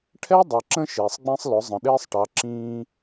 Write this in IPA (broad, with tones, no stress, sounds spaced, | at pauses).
ʈʰ ɛ˦ dˤ ʌ˨ ǁ ə̃˦ ʃ ɪː˨ sˤ ɡ͡b ĩ˦ sˤ l ʊ˨˦ zˤ ə̃˨ ɗ ɪː˦ sˤ ʈ ɑ˨˦ ǁ ĩː˦